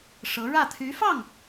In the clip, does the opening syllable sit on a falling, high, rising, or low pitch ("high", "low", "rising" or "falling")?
rising